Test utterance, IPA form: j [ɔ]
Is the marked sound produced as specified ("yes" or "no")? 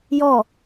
yes